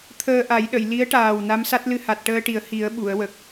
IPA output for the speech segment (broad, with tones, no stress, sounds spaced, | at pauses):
t̪ʰ əː˧ ʔ a˨˩˦ j ɗ ə˨˩˨ j l i˧˥ ə̯ ʈ aː˨˩ w n a˧˥ m s a˦˥ t̚ l ɨ˧ h a˨˩ t̚ ʈ əː˧ ʈ i˨˩˦ ə̯ h i˨˩˦ ə̯ ɓ u˨˩˨ ə̯ w ə˨˩ k̚